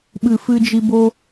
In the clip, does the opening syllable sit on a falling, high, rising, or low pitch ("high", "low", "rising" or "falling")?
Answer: low